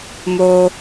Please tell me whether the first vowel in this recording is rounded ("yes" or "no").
yes